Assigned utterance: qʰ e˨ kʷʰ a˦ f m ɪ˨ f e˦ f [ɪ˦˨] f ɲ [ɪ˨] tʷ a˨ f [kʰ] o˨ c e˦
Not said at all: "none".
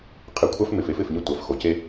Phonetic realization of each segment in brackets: ɪ˦˨, ɪ˦˨, x

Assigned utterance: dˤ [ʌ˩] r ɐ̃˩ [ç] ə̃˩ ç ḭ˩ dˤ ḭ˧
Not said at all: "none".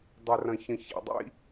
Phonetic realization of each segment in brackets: ə˩, ç

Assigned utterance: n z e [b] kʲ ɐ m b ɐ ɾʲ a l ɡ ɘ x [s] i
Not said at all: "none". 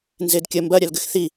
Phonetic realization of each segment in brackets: d, θ

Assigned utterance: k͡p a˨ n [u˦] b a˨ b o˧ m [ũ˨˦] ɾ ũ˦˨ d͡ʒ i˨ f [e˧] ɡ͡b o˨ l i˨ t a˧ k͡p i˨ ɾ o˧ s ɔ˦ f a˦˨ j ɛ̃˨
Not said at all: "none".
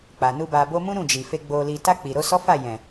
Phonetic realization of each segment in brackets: u˧, ũ˦, e˧

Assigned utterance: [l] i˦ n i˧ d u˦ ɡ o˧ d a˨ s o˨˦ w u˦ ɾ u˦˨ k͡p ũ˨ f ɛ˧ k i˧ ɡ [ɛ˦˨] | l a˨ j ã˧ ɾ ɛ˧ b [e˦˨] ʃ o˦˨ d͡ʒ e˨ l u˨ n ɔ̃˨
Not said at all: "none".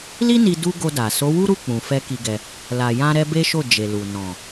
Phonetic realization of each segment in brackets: l, ɛ˧, e˦

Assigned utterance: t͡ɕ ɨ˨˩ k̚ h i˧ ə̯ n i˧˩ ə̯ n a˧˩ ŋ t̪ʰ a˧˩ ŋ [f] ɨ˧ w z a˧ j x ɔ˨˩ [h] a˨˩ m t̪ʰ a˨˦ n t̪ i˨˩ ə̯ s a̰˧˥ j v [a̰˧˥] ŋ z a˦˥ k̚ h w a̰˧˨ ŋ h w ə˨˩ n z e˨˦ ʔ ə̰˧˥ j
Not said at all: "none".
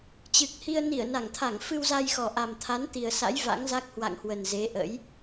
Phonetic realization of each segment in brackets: f, ʔ, a̰˧˥

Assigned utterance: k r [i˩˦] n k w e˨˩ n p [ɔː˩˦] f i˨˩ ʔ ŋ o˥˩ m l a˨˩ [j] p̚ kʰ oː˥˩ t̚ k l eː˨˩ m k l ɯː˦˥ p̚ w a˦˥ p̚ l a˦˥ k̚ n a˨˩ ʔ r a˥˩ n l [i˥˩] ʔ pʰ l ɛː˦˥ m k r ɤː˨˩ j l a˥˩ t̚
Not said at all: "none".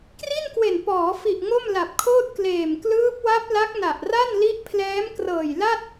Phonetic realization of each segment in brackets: i˥˩, ɔː˩˦, none, i˦˥

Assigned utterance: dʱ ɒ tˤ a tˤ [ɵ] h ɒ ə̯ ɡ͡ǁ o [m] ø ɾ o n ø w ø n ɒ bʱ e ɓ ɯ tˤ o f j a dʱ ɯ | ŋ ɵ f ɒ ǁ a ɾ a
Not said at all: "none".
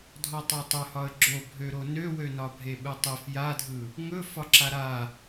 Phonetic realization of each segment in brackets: ɵ, bʱ

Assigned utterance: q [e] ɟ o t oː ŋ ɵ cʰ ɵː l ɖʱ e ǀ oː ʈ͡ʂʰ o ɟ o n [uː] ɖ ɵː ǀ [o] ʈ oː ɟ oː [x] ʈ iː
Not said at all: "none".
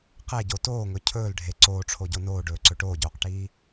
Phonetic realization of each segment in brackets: e, oː, ɵ, q

